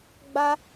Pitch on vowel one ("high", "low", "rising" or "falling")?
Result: high